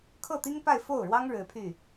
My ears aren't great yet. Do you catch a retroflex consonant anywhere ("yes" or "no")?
yes